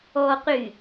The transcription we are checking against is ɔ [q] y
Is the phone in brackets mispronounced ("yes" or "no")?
no